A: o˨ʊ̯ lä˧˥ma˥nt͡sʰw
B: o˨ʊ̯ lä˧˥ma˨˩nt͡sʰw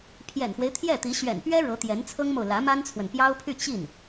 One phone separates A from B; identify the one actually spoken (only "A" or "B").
A